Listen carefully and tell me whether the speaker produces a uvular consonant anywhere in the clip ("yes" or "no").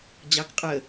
yes